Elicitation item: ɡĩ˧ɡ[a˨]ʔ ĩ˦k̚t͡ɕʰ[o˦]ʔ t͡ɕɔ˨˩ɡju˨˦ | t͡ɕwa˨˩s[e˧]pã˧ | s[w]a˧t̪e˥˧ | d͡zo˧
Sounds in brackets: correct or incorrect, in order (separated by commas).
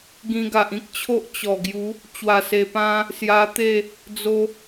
correct, correct, incorrect, incorrect